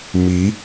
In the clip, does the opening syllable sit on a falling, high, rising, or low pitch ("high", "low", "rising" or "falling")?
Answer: rising